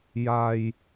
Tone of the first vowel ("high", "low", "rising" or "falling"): low